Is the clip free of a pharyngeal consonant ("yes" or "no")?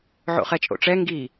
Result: no